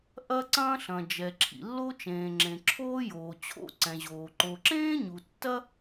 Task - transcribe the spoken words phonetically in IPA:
ʔ ɐ˥ ǀ ɐ̃ː˥ ɬ ɐ̃˨ d͡ʒ ɛ˨ ǁʰ ḭ˨ lː o˥ t͡ʃ ẽː˨ ŋ͡ǁ ẽ˨ ǁʰ oː˥ j oː˨ t͡ɕʰ o̰˥ ǀ ɛ̃˨ ʑ oː˨ ǃ o˨ ǁ ẽː˥ ɲ u˨ tː ɐ˥

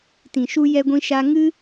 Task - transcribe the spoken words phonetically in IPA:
t ĩ˨ ʃ u˧ j ɛ˧ ɡʷ ĩ˧ ʃ a˧ ŋ ɨ˦

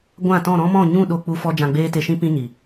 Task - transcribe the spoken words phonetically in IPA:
ɡʷ ã˦˨ t ɔ̃˦˨ ɾ ɔ̃˦ m ɔ̃˦˨ ɲ ũ˦˨ ɗ o˧ k͡p u˧ f ɔ˧ d͡ʒ ã˧ ɡ͡b eː˦ t e˧ ʃ ĩ˦ p ĩ˦ ɲ i˨

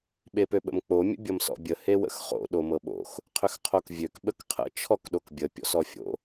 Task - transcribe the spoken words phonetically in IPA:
ɓ e p ø ɓ ə̰ m k͡p o mʲ ə̰ bʲ ʌ m s ɔ̰ bʲ ə h e w ə̰ x χ o̰ ɗ o m ɤ ɓ o̰ x | qʰ ʏ x qʰ o k vʲ ø k ɓ ə k qʰ ə̰ t͡ʃʰ ɔ k ɗ o k bʲ ə pʲ ɔ̰ s ɔ fʲ o̰

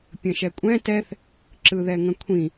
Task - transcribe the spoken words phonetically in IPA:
pʲ ə̃ ʃ ɛ kʷʼ ɛ̃ t ɛ θ | ǁ ɯ ð ɛ ŋ ə̃ kʷʰ ĩ

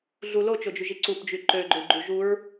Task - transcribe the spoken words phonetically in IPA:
ɮ u l o t͡ʃ o d͡ʒ y ʒ i ǀ u p d͡ʒ y ǃ ø ɡ͡ǃ ø ɡ͡ǃ u ʒ u ɹ

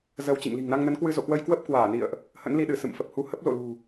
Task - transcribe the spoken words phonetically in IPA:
z ə˧ w t͡ɕ ḭ˧˨ ŋ l i̤˨˩ ŋ n a˧ ŋ n ə˨˦ n k w ɨ˧ z o̰˧˨ k w ə˧ j k w ə˦˥ p̚ k w aː˧˩ n ḭ˧˨ ə̯ ʔ | h ə̰˧˥ n l i˧ ɗ ɨ˧˩ s ɨ̰˧˨ m f ə˨˩ p̚ h u˧ h ə˦˥ p̚ l o̰˧˨ l ṳ˨˩

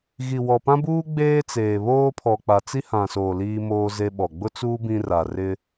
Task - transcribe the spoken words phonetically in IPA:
ɣ i˨ w ɔ˨ p ã˦ b uː˦ ɡ͡b eː˦ t͡s eː˨ β oː˦ pʰ ɔ˨ k͡p a˨ t͡s i˦ h ã˨ s oː˨ l iː˦ m oː˦ z e˦ ɓ ɔ˨ ɡ͡b ʊ˦ t͡s uː˦ b ĩ˦ r a˨ r ɪ˦

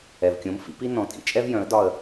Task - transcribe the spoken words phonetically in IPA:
ɛ˨ v kʲ õ˨˥ m f ḭ˨˥ p i˥ n ɔ̃˨ tʼ ḭ˨˥ t͡ʃʼ ɛ˥ v j œ̃˨˥ ə̯ d ɒ˥˧ ə̯

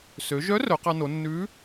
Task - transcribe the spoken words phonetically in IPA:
s ø˩˧ ʒ œ˧˥ r œ˩˧ q ɑ˧ n o˩˧ nː ʉ˧˥

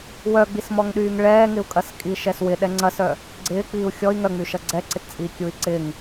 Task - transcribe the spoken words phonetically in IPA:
w œ ɡ͡b i s m ɔ ŋ ɗ yː ŋ ɭ ɛː ŋ ɪ u̯ kʼ ɐ s kʼ i ʃ ɛ s w ɪ ɗ ɛ ŋ͡ǀ ɐ s œ | ɡ͡ǀ ɪː k͡p iː u̯ xʲ ɔ i̯ ŋ œ ŋ͡m y ʃ ɐ ɡ͡ǀ ɛ ǀ ɪ t t͡sʼ iː kʲ u i̯ ǀ ɪ ŋ

